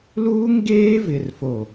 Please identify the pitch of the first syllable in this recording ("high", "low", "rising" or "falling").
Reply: high